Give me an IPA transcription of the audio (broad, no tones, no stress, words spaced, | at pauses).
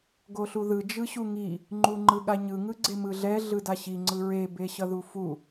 ɡoɬuðɯ d͡ʒɯɕuŋi | ŋ͡ǃuŋ͡ǃɯɠaɲɯ ŋɯɡ͡ǀemɯɮɛ ɮɯdaɕi ŋ͡ǀɯɹe beɕʌðufu